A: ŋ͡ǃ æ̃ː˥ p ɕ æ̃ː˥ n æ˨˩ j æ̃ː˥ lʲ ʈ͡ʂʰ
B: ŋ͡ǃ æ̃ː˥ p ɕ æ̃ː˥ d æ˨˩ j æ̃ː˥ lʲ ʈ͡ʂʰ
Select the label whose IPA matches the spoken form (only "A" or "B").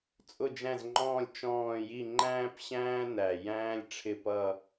A